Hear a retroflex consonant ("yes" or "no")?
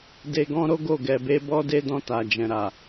no